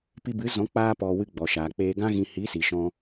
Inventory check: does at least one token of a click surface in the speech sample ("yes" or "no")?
no